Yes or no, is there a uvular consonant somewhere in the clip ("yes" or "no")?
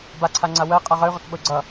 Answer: yes